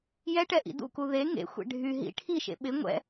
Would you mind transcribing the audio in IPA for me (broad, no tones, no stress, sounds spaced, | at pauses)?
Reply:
j ɛ ʈ ɛ ʔ ḭ d ṵ k u ð e ŋ ḛ xʷ ḛ ɖʱ y ɦ ḭ ʈʰ i ʃ ḛ ɓ ɪ ŋʷ ɛ̰